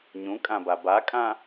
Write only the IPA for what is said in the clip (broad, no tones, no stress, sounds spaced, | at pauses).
ɲ ũ kʼ ã b a b a kʼ ã